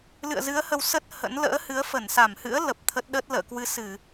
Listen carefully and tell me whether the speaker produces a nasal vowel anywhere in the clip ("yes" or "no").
no